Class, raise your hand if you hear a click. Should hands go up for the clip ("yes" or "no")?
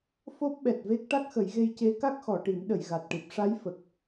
no